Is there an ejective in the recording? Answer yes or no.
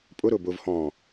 yes